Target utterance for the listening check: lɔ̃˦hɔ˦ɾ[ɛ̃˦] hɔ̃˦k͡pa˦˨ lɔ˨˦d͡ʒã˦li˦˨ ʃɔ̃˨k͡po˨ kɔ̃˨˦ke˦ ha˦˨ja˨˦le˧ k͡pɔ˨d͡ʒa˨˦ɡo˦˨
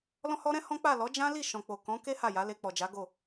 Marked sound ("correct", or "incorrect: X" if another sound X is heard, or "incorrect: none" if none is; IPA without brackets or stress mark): correct